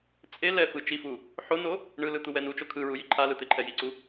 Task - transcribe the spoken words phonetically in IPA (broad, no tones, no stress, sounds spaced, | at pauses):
t͡sʼ e l ɛ f ɯ t͡ʃ i f u | ħ o n o | ɳ ɯ l ɯ t̪ u w ɛ n u t͡ʃ o kʰ ɯ ɹ u j i ǃʰ a l ɯ t̪ e ǃʰ ɛ j i ǀ u